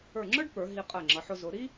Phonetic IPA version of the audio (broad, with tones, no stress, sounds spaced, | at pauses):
ə˞˧˩ ŋ͡ǁ ə˞˥ ɖ p ə˞˩˧ ɦ i˧ qʼ ɜ˧˩ ŋ͡ǁ ʌ˩˧ ħ ʊ˧ z ʊ˩˧ ɾ i˥